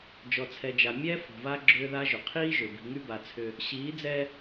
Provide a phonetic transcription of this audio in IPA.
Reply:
d͡ʒ ɔ˨ t͡sʰ ɛ˨ d͡ʒ a˨ mʲ ɛ˦ f ɔ̤˨ v a˦ ɡ͡ǁ ʏː˦ ð a˦ ʒ ʏ˨ qʰ iː˦ ʒ ʏ˨ b i̤˨ ŋ y˦ b a˨ t͡sʰ ʏ˦ | ɕ iː˨˦ d͡z ɛ˦

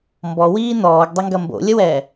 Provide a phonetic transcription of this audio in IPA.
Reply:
m b ɔ w iː n ɔː ɡ dˤ ə ŋ ɡ ɐ m b o̰ lʲ ə w ɛː

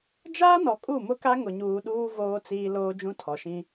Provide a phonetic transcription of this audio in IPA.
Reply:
d͡ʒ aː˦ n ɔ˨ kʼ u˦˨ m ʊ˦ k a˦ ŋ ʊ˨ ɲ uː˨ ɗ uː˦ v oː˦ t͡s iː˦ l oː˦ d͡ʒ ũ˦ tʰ ɔ˨ ʃ ĩ˦

